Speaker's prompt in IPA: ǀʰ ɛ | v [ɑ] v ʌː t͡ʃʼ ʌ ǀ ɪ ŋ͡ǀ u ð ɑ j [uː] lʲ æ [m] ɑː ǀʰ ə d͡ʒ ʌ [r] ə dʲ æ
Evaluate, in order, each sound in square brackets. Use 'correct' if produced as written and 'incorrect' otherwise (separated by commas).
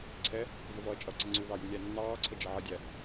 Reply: incorrect, incorrect, incorrect, incorrect